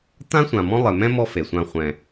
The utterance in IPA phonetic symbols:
t ã˥ sʷ ã˨ m ɔ̃˥ lˠ ɪ˨ m ɛ̃˥ m ɔ˦ f e˩ sʷ ã˨ χʷ ɛ̃˩

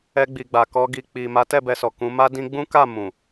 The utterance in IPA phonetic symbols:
ɛ˧ ɡ͡b i˨ ɡ͡b a˨ k ɔ˧ ɡ i˨ k͡p i˨ m a˨˦ t ɛ˦˨ b ɛ˧ s ɔ˨ k ũ˨˦ m a˦ d ĩ˦ ɡ͡b ũ˦ k a˦˨ m ũ˨

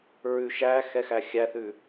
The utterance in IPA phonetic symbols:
ɹ ʉ ʃ æ x ɛ x æ xʲ æ θ ʉ

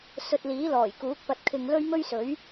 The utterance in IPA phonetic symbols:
s ɵ˧ t̚ l iː˨˥ l ɔː˨˩ j k uː˨˥ k̚ p ɐ˧ t̚ kʰ ɪ˧ ŋ l ɵ˥ ɥ m ɵ˥ ɥ s ɵ˨˥ ɥ

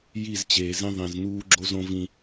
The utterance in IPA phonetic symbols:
j i˦˨ z t͡ɕ eː˨ z ĩ˦ ðˤ ĩ˨ z n uː˦ ɡ͡ǁ o˦ z õ˦ v ĩ˦

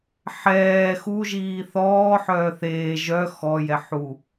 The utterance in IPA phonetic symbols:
ħ ɛː x u ʒ iː θ ɔː ħ œː θ eː ʒ œ x ɔ j ɛ ħ u

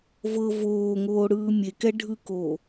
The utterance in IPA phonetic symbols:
v ɤ v oː ŋ oː ɽ ɯː mʲ e k ɛ ɖʱ ɯ k oː

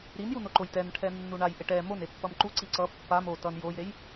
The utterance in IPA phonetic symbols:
ɾ i n j u n o ǃ o j t ɛ n ʈʰ ɛ nː u ɳ a j ʔ e ʈ ɛ m o n e pː ʌ m ǃ u ǀ i ǀ ʌ pː a m o t ʌ n j o j ɾ e j

